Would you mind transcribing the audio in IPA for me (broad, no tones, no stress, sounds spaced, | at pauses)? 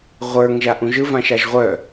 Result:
ʁʷ ə˞ ŋ ʒ a ʔ ũ ʒ ɯ v ã ʃ a ʒ ʁʷ œ